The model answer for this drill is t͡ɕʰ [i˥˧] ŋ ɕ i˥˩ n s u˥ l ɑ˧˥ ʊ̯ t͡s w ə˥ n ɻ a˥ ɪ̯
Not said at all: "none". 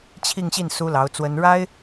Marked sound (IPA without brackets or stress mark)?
i˥˧